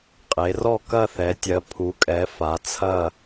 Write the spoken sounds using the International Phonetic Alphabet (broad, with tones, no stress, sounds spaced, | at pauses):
qʼ e˩˧ r ɔ˦˨ k ɐ˦˨ θ ɛ˩˧ tʲ ɜ˩˧ pʰ u˩˧ kʼ ɛ˩˧ f a˩˧ t͡sʰ ɐ˦˨